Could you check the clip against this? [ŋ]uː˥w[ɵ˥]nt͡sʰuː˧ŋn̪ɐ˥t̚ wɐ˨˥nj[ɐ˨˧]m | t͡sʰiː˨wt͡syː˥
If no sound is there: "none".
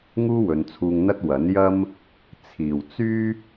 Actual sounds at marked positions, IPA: ŋ, ɵ˨˧, ɐ˥

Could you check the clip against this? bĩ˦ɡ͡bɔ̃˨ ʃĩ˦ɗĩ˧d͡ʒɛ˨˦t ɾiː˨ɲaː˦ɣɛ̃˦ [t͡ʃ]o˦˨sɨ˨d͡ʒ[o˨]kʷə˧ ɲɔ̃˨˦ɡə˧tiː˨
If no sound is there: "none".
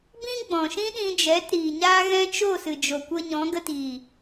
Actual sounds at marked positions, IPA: t͡ʃ, o˨

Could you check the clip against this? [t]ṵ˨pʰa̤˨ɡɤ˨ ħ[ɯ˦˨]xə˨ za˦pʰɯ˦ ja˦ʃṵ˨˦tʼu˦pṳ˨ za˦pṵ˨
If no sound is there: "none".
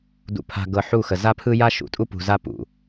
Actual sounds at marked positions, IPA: d, u˦˨

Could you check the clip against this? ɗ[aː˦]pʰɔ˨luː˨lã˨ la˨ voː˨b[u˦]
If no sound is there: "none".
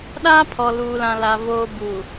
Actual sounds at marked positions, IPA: aː˦, u˨

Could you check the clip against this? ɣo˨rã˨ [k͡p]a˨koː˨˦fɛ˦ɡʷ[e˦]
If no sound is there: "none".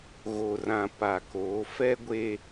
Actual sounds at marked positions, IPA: p, e˦

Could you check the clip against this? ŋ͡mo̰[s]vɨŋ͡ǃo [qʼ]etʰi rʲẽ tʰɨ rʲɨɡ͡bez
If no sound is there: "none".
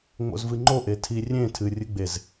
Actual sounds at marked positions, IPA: z, ʔ

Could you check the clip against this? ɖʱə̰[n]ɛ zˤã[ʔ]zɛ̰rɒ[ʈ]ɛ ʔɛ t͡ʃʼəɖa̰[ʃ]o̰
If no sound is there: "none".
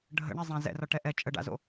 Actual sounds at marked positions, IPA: ɳ, none, ʈ, z

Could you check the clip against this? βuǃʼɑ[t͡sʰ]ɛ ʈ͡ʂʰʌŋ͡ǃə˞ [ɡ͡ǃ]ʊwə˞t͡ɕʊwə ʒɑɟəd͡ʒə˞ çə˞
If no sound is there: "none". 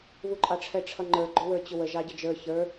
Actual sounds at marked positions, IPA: ʈ͡ʂʰ, ɡ͡ǃ

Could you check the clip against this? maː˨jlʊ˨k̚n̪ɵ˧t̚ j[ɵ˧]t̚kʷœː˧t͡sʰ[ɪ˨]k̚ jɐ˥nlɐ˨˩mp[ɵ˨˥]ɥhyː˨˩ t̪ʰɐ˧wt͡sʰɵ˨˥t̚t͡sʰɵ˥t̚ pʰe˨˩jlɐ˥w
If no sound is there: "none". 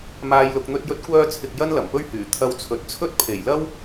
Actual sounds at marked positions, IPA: ɵ˧, ɪ˨, ɵ˥

